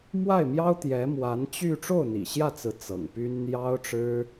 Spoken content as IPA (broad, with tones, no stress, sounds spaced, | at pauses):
m w a˥˩ ɪ̯ m j ɑ˥ ʊ̯ t̪ j ɛ˧˥ m w a˧˥ n t͡ɕ y˥˧ ʈ͡ʂ o˥˩ ʊ̯ n̪ ḭ˨˩ ɕ j ä˥˩ t͡s ɹ̩˧˥ t͡s ɤ̰˨˩ ŋ p y˥ n n̪ j ɑ˥ ʊ̯ ʈ͡ʂ ɻ̩˥